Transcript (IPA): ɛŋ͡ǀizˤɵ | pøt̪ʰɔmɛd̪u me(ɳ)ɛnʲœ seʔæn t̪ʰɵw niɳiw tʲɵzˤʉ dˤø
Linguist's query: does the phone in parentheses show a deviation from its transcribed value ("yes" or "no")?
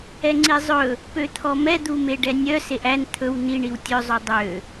yes